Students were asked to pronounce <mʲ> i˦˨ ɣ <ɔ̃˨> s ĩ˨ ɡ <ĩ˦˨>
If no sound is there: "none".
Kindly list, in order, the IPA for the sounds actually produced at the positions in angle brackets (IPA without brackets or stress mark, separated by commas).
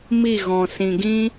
m, ɔ̃˨, ĩ˦